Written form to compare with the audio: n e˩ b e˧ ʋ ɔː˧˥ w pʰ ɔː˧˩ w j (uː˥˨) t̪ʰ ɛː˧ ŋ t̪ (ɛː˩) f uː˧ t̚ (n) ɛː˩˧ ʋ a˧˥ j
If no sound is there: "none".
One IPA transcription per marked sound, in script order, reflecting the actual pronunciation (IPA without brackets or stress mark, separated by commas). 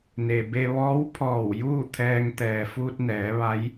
uː˥˨, ɛː˩, n